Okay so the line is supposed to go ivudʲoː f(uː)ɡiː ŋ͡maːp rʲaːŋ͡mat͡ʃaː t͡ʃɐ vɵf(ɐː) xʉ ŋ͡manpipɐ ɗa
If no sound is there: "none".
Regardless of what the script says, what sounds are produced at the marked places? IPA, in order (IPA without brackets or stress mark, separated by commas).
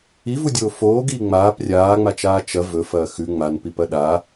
oː, ɐː